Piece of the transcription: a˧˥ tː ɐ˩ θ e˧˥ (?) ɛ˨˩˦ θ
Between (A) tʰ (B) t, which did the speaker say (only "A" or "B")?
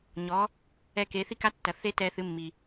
B